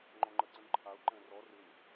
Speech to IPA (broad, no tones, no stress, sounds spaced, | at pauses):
ŋ͡ǃ ɔ̃ ŋ͡ǃ ə ǀ ə̃ n ǃʰ a ʊ̯ ǃ ɛ̃ r ɔ r ɨ n